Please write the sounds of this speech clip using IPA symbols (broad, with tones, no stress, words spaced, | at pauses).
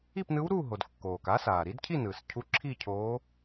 i˥˨pnɯ˧˥w ɾu˥˨ɦo˩d kːoː˩k a˧˥ saː˩ɾi˧˥dcʰi˥˨ nɯ˩s cʰu˧˥ǁʰi˥˨ cʰoː˧˥